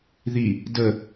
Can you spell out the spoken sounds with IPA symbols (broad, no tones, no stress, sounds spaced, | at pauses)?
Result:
ð i | d ə